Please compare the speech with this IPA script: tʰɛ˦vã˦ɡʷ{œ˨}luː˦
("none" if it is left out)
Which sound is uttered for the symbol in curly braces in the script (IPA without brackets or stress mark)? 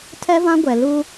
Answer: ɛ˨